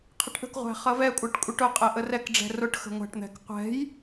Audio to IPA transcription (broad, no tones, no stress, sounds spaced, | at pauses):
qʰ ɪ ʈ ʔ ə̤ k ʁʷ æ̤ χ ʌ v ɛ kʷʼ æ ʈ kʷʼ ɪ ʈ ʊ qʼ ɛ ʔ ə r ɛ k ɖ͡ʐ ɛ̤ r ʊ ʈ x ə̤ ŋʷ æ̤ ʈ n̪ ɛ̤ k qʷ ɛ̤ j